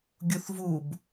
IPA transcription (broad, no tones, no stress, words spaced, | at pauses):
ɡʲuθvub